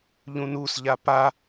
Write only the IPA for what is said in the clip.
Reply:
ʎũnusʎa pa

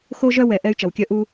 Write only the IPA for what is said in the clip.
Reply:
xo˧ʒœ˧wɛ˩ ʔɛ˧y̯t͡ʃʌ˩wkʲœ˧ ʔu˧

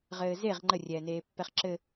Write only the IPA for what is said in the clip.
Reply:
ʁɘːzeʁ ŋ͡ǃərʲɛːneːpːɛχ ǁɘ

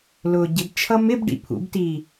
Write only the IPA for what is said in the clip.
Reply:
lʊːɟɪbt͡ʃʰʌ mɪbɖḭ pʰṵbtiː

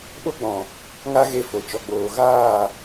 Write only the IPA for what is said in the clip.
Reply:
ɓo˦ɡ͡bɔ̃˨ | ŋa˦ ɣe˧fo˨ t͡ʃɔ˨ɡ͡boː˨ ɣaː˦˨

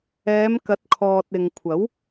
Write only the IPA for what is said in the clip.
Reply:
ɛː˨˧mkɐ˨˥t̚kʰɔː˨t̚ ɪ˨ŋkʷʰɐ˨˥w

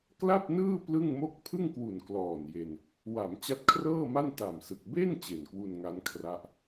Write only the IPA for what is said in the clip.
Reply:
kla˥˩p̚nɯː˥˩ plɯ˥˩ŋmo˥˩k̚ pʰɯ˥˩ŋkwu˨˩n klɔː˨˩n je˧n | wa˩˦m t͡ɕa˦˥t̚kʰrɤː˥˩ma˥˩n ta˨˩msɯ˨˩k̚ be˥˩n t͡ɕe˨˩nkwu˧nŋa˦˥nkʰra˦˥ʔ

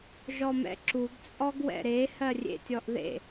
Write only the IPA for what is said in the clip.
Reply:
ʒɔmɛ̰ǁuɡ t͡sʼɔɡwɛ̰ɾe hɜrʲḛtʲɔʔðḛ

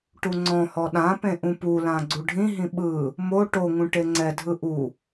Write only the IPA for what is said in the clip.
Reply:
ʈuŋ͡ǀɔ̃hɔ ɗãpẽ ʔũpulã ɡ͡ǀuɖʱĩɦĩ ɓɯ | mo ʈoŋũ ʈeŋ͡ǀɛdʱɯ ʔu

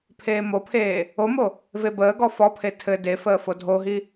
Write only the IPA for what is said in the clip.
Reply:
pʰeːmopʰeː | omo | vebəːɡɔ fɔpʰe tʰɘ defəː fodʱoɦi

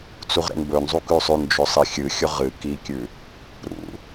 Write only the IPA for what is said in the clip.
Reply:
t͡suʁɾḛnbɵnzˤu kʉsˤʉnd͡ʒɵ sˤixʲɨxʲɵ ʁɨ kikʲʉ | ɾṵ

